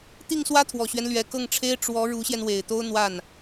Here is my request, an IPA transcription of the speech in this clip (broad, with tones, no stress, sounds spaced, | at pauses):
t̪ i˥˩ ŋ s w ä˥ t̪ʰ w ɔ˨˩ ɕ ɥ ɛ˦ n l ɥ ɛ˨˩ k ɤ˥˩ ŋ ʈ͡ʂʰ e˥ ɪ̯ ʈ͡ʂ w ɔ˧˥ ɻ u˧˥ ɕ j ɛ˧ n w e˨˩ ɪ̯ t̪ o˥ ʊ̯ n̪ w a˥˩ n